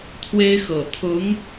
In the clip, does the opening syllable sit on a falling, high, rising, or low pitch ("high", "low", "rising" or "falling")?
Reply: high